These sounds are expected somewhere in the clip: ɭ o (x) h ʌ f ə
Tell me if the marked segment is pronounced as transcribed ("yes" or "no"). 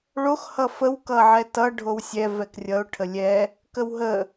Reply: yes